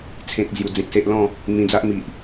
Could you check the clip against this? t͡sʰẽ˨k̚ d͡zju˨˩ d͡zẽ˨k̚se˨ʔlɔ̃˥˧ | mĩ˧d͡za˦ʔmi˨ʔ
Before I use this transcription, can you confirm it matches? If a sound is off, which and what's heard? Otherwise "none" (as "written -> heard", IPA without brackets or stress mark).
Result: none